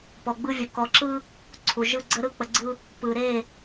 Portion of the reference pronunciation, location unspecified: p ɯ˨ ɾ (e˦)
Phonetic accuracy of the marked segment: incorrect: e˦˨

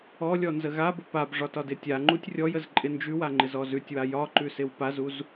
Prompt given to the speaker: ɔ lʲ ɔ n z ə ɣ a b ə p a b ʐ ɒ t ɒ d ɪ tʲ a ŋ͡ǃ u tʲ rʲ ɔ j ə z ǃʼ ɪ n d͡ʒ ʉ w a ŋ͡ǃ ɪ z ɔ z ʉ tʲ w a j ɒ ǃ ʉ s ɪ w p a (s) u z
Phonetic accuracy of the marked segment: incorrect: z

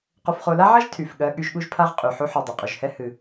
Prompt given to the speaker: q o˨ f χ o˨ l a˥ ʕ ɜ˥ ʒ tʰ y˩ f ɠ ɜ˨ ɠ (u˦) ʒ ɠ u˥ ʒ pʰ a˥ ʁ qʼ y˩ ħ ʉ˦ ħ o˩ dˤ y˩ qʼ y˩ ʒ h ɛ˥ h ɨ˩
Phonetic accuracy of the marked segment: incorrect: y˦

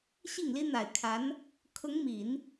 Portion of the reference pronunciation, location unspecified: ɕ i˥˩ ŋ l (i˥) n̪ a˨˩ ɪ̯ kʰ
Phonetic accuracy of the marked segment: correct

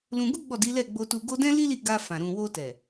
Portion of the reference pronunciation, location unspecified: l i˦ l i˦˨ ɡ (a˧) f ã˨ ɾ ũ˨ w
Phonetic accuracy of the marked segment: correct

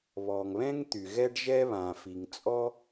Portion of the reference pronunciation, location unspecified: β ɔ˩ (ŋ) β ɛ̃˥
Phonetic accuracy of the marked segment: correct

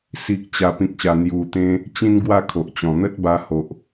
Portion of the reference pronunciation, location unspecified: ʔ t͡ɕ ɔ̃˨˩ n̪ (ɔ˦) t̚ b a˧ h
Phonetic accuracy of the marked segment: incorrect: ə˦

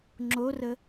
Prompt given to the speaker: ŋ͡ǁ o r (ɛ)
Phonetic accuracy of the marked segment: incorrect: ə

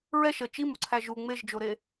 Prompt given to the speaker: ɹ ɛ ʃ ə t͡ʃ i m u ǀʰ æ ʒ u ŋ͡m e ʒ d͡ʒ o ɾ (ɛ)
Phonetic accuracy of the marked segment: incorrect: e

